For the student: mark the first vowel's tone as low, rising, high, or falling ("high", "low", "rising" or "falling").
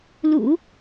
low